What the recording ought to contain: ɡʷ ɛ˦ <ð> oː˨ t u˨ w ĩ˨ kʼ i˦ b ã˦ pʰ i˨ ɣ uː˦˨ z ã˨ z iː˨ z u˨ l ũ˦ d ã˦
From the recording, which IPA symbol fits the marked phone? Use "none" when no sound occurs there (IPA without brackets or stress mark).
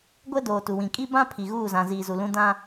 d